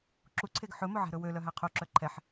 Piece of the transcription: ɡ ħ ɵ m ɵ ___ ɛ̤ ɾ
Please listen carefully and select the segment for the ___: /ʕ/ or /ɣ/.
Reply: ʕ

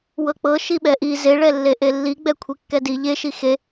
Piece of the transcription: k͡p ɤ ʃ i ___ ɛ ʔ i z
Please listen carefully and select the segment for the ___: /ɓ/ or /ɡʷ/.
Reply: ɓ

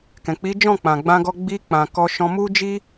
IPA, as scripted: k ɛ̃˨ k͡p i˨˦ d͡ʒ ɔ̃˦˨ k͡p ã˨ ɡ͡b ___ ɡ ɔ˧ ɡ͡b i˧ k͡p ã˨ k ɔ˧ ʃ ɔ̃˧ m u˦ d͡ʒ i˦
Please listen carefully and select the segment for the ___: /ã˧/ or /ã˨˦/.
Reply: ã˧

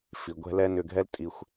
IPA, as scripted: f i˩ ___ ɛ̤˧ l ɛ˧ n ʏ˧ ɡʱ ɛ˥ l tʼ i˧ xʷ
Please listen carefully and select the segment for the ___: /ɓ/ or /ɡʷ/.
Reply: ɡʷ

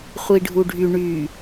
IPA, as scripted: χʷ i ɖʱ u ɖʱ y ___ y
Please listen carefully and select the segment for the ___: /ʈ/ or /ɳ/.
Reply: ɳ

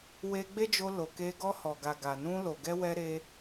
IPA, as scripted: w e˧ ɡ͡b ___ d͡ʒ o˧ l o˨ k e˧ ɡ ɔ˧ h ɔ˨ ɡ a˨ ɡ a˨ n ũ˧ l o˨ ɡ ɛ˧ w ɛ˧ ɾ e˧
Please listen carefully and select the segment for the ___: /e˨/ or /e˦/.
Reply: e˦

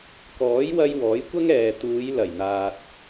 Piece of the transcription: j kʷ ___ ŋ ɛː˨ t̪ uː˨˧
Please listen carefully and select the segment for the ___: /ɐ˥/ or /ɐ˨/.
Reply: ɐ˥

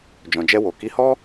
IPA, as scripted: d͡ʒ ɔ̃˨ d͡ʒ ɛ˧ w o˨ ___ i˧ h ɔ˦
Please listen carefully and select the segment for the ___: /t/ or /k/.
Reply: k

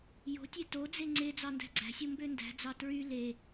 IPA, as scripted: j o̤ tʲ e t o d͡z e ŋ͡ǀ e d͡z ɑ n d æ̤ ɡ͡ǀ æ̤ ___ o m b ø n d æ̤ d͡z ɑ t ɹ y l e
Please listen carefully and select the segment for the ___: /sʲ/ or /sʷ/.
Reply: sʲ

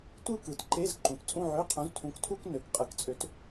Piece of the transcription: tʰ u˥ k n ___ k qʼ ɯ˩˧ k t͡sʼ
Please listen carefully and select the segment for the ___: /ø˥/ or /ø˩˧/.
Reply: ø˩˧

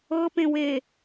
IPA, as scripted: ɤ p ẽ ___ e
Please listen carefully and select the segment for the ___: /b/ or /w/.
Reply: w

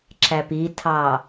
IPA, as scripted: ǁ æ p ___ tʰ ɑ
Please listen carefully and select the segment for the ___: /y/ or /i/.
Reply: i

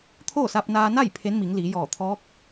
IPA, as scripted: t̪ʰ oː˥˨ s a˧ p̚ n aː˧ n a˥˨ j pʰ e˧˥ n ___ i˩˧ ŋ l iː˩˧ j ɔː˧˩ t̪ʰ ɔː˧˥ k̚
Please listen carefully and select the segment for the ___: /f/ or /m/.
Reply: m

